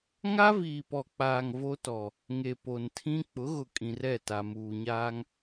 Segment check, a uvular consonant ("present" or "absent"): absent